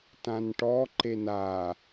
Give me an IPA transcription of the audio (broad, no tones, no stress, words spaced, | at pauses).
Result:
tãnʈɔ ǃena